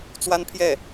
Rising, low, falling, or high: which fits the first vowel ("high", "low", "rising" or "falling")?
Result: high